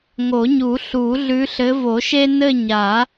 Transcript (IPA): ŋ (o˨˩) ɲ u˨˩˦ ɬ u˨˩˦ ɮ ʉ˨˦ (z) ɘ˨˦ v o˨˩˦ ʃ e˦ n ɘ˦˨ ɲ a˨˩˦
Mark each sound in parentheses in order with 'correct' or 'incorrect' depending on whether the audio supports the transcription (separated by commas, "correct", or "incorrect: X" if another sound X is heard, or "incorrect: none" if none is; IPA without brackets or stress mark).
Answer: incorrect: o˨˩˦, incorrect: ɬ